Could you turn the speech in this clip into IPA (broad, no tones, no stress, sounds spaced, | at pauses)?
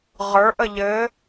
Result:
ʁ ə˞ ʔ ə ʎ ɘ